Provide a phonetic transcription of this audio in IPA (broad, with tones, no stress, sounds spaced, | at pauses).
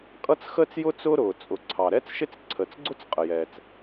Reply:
kʼ ʌ˥ t͡s x əː˥ t͡s j ʊ˥ t͡s ʊː˥ ɾ ʊː˩ t͡sʼ ʊ˩ ǀʰ ɑ˩ ɾ ɛ˥ t͡s ʃ ɪ˥ t͡s ǀʰ ə˩ t͡s ɡ͡ǀ ʊ˥ t͡s qʼ ə˩ j ɛː˩ t͡s